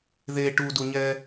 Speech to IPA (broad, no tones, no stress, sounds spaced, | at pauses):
ð e ʈ u d u ɲ ɛ